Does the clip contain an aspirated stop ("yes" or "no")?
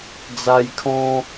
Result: yes